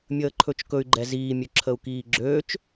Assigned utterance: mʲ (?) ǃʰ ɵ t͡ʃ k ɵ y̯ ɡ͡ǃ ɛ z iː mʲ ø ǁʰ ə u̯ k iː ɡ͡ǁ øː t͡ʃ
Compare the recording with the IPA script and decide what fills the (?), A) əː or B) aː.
A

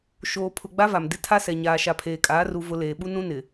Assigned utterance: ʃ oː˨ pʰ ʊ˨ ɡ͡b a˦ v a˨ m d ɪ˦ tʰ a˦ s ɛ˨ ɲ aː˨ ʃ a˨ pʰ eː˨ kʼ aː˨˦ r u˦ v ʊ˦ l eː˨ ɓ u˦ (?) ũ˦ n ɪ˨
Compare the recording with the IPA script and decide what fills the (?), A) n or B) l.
A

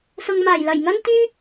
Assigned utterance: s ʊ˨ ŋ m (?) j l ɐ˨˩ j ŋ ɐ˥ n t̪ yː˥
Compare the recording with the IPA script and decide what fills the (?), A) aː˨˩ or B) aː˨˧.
A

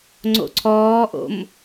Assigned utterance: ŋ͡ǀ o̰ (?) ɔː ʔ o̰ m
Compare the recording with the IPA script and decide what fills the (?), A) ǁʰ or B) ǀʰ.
B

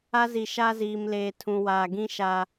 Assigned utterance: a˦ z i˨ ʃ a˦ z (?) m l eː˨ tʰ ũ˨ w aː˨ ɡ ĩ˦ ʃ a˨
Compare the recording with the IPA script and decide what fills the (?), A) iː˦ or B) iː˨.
B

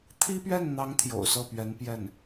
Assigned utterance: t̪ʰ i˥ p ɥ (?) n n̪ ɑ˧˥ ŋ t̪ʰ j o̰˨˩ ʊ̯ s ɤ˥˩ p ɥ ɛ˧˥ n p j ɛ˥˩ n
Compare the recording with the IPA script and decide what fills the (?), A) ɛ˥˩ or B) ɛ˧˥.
A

